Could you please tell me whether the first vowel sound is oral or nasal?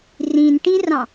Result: nasal